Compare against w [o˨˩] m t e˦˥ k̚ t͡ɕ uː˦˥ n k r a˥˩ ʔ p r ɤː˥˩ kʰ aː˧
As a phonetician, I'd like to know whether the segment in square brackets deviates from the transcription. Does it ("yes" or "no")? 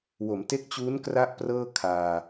yes